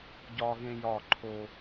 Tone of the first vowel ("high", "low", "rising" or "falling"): high